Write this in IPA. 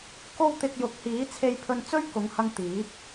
k o˥ w t̪ ɪ˧ k̚ j ʊ˨˥ k̚ h iː˨˥ t͡sʰ e˧ j pʰ ɵ˧ n t͡s ɵ˥ ɥ k ʊ˨˧ ŋ h ɐ˧ ŋ t̪ iː˨˥ p̚

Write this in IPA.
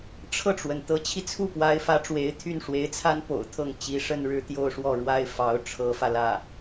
ʈ͡ʂʰ ɤ˥˩ ʈ͡ʂ w ə˩ n t̪ ɤ˧˥ t͡ɕʰ i˧ t͡sʰ u˥˩ p w a˧˥ ɪ̯ f ä˧˥ ʈ͡ʂ w e˧˥ ɪ̯ t̪ʰ y˥˩ n ʂ w e˧˥ ɪ̯ t͡sʰ a˥ n p o̰˨˩ ʊ̯ t̪ʰ ɤ˥˩ ŋ t͡ɕ i˧˥ ʂ ə˥˧ n ɻ ɻ̩˥˧ t̪ j o˥˧ ʊ̯ ʂ w ɔ˥˩ ɻ w a˥ ɪ̯ f ɑ˧˥ ʊ̯ ʈ͡ʂʰ ɤ˧˥ f ä˧ l ä˥˩

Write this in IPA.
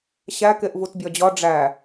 ɕ æ k e ʔ v u t bʲ ɒ d͡ʑ ɒ ɖ͡ʐ æ

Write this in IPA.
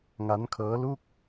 ŋ a˦˥ n kʰ ɤː˦˥ l u˥˩ k̚

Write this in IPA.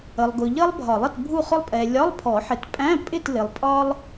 ə˨ lˠ ɡ ʊ˨ ʎ ʌ˥ lˠ bʱ ɒ˨˩˦ lˠ ʌ˥˨ t bʱ u˥˨ χ ʊ˥ lˠ pʼ ɛ˨ lʲ ɒ˧˥˧ lˠ pʰ ɔ˨˩˦ ħ ɪ˨ t pʼ æ̃˧˥˧ pʼ ɪ˥˨ t l ɪ˨ lˠ pʼ ɒ˥ lˠ

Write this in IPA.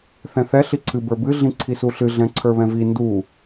θ ɛ̃ θ ɛ ɬ i ǀʰ ɨ b ə˞ b ɨ ɮ ĩ ǀʰ i s u ɬ ɨ ɮ ɛ̃ ǀʰ ə˞ β ɛ̃ v i n d u

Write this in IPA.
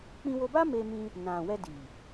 k͡p ĩ˧ w o˧ b a˦ m e˧ m ĩ˧ | n ã˨ w ɛ˧ d i˨

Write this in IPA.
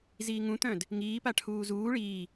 z iː ŋ ũ t̪ œ̃ d | ŋ iː p a ʈʰ uː z uː ɭ iː

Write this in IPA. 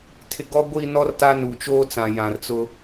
tʰ ɪ˨ ɡ ɔ˦ ɡʷ i˦˨ n ɔ˦ r t a˦ n u˨ t͡ʃ oː˦ t͡s ã˨ j ã˨ r t͡s ʊ˦

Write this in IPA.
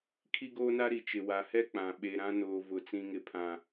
kʰ i˦ ɡ oː˦ n a˦ ɾ i˨ t͡ʃ ɪ˨ w a˨ h ɛ˦ k͡p ã˨ ɓ e˨ ɾ ã˦ n oː˨ v ʊ˨ t͡s ĩ˨ ŋ ɪ˨ pʰ ã˨

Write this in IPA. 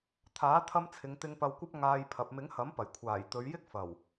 t̪ʰ aː˨˥ t̪ʰ ɐ˧ m t͡sʰ ɪ˨˧ ŋ t̪ ɪ˧ ŋ p ɐ˧ w kʷ ɐ˥ p̚ ŋ aː˨ j pʰ ɐ˨ p̚ m ɪ˨˥ ŋ h ɐ˨˥ m p ɐ˨˩ j kʷʰ aː˨˩ j t̪ ɵ˨˧ ɥ j ɪ˥ k̚ f ɐ˨˩ w

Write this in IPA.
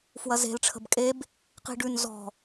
f w ɐ z e̤ l ʈ͡ʂʰ ə̤ b kʼ e b | q i̤ ɖ ʉ n z ɔ̤

